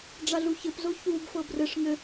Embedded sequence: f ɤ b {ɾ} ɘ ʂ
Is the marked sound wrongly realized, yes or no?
yes